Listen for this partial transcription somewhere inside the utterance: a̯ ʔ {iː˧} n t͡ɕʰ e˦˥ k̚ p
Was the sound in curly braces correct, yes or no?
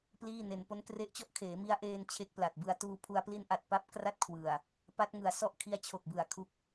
no